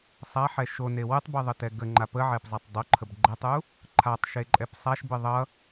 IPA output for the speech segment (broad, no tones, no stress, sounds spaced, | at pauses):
sˤ a ħ ɛ ʃ o n e w ɨ tˤ b ɨ ðˤ ə t ɛ ɡ ə ŋ͡ǃ a p ə ʕ ɛ p zˤ a tˤ dˤ o ǃʰ ə b ɡ͡ǃ ɛ tˤ u | ǃʰ a tˤ ʃ e ǃʼ ɛ p sˤ a ʃ b ɨ ðˤ ʌ